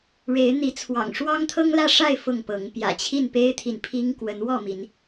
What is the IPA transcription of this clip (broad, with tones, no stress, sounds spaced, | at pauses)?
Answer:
ɻ e˨˦ ɪ̯ n̪ i˨˦ t͡sʰ w ɑ̰˨˩ ŋ ʂ w ɑ˦ ŋ t̪ʰ ɤ˦ ŋ l ä˥˨ ʂ a˥˨ ɪ̯ f ʊ˥˨ ŋ p ɤ˨˦ ŋ p j ä̰˨˩ t͡ɕʰ i˥˨ n p e˦ ɪ̯ t̪ʰ i˨ n pʰ i˦ ŋ k w ə˨˦ n w ɔ˥˨ m i˨˦ n